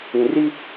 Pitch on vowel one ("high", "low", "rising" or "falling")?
low